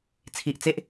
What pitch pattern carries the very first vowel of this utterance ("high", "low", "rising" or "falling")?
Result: low